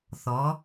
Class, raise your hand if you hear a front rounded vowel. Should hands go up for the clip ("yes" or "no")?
no